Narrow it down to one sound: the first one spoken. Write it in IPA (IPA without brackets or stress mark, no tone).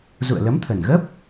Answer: z